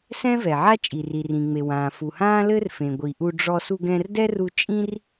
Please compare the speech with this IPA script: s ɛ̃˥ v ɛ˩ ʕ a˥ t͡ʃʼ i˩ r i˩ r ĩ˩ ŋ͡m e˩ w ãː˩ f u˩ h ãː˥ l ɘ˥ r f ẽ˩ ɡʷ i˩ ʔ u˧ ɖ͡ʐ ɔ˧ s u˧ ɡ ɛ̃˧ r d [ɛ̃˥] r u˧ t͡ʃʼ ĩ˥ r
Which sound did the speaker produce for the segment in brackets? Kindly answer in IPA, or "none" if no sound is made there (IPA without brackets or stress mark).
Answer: ɛ˥